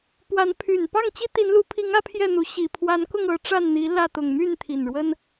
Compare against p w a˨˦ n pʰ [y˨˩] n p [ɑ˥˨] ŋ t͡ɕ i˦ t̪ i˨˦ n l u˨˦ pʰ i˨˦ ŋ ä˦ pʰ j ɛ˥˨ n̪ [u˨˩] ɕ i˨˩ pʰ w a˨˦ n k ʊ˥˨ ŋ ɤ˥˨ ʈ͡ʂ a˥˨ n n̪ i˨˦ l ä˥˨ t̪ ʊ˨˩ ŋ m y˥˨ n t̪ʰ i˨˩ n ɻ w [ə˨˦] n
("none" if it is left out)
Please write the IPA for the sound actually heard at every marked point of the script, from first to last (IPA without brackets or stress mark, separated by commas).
y˨˩, ɑ˥˨, u˨˦, ə˦